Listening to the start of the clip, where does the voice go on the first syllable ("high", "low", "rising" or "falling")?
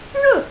falling